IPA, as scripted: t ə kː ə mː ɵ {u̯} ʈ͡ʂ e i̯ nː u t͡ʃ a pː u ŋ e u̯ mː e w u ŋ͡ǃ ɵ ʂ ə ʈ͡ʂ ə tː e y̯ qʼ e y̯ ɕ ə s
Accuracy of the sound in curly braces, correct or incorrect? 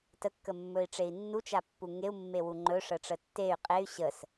incorrect: i̯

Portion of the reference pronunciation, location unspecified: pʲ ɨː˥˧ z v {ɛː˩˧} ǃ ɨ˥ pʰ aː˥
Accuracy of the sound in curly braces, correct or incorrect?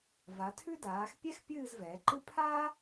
correct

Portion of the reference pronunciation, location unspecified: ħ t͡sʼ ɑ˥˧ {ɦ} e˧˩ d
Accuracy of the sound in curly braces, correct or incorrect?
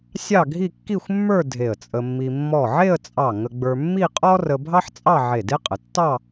incorrect: ʕ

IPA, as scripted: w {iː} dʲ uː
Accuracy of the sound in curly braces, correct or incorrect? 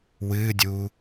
incorrect: ɨː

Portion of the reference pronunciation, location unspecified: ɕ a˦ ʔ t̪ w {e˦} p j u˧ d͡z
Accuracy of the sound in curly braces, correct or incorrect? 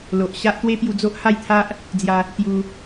correct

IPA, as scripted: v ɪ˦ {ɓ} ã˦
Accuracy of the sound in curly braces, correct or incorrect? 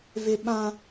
correct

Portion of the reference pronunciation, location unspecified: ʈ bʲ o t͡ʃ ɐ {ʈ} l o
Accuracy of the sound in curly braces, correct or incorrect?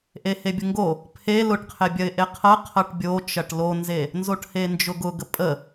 correct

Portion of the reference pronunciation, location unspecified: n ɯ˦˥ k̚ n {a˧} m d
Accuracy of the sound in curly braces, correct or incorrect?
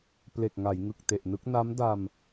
incorrect: a˦˥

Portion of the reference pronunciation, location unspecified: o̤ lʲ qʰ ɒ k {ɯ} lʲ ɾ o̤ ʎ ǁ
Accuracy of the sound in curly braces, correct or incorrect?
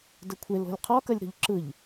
incorrect: ə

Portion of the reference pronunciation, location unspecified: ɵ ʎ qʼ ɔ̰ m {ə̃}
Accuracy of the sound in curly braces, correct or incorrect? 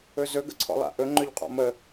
incorrect: ə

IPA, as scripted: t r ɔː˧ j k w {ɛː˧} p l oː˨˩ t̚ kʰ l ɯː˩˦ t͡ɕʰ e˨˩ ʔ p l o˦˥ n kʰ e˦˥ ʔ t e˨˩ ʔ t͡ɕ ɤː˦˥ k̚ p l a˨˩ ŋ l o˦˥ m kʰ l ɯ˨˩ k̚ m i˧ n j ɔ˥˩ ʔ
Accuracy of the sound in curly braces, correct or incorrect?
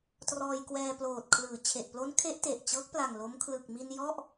correct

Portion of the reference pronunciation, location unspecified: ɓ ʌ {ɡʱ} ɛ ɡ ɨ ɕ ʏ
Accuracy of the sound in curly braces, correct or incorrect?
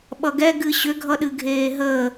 incorrect: ɡ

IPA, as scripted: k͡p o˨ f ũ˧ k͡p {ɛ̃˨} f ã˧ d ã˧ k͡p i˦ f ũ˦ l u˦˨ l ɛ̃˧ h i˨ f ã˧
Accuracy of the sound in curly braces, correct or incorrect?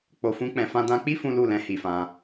correct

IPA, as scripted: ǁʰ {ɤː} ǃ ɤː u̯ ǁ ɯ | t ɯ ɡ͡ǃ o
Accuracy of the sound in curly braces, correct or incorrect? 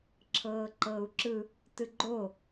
correct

